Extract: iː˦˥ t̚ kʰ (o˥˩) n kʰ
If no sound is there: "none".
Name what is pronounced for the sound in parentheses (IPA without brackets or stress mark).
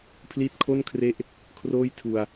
o˥˩